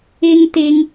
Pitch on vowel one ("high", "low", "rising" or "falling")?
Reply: high